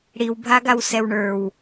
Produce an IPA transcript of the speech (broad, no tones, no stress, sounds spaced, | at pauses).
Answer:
ɽ i w bʱ a ɡ a w s ɛ w ɳ ə˞ w